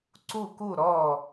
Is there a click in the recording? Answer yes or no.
yes